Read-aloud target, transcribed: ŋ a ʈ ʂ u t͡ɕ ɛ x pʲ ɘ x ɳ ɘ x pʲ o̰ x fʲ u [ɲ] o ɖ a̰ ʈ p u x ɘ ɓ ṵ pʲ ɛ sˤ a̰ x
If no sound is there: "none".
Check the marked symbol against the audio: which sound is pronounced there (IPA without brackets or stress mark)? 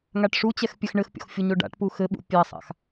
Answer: ɲ